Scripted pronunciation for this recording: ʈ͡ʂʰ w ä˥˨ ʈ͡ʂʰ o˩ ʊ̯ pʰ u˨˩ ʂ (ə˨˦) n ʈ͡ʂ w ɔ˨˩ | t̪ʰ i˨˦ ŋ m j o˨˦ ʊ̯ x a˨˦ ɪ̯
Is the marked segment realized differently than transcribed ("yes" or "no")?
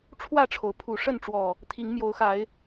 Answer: yes